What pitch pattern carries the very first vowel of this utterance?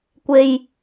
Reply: low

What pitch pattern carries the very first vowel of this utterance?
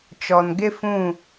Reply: low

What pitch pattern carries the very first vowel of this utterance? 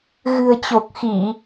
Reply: low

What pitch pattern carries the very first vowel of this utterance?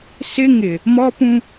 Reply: high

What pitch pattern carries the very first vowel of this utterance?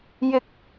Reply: rising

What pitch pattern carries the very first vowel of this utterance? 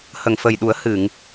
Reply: low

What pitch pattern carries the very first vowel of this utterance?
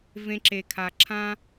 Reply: high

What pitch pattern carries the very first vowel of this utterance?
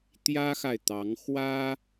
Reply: high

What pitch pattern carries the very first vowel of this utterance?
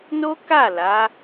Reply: high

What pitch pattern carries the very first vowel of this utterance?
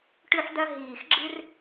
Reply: high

